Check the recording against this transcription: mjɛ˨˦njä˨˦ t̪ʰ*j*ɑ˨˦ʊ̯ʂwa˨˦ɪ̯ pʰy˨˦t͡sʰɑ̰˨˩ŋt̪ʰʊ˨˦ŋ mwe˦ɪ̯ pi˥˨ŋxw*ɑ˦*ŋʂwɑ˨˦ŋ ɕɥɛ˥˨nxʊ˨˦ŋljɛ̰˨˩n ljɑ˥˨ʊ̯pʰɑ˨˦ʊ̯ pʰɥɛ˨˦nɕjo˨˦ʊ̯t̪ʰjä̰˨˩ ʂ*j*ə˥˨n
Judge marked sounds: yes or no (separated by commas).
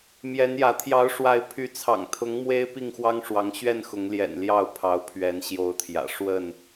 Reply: yes, yes, no